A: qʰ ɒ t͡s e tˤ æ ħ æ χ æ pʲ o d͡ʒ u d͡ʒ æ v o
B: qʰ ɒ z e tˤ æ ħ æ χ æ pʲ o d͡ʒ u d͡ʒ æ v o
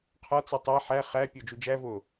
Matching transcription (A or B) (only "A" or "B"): A